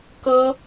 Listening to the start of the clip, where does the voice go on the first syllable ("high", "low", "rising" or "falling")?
high